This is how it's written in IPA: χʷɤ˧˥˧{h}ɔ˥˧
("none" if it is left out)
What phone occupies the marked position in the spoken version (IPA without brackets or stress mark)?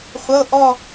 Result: ʔ